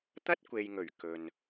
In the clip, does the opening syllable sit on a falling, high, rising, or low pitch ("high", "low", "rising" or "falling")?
high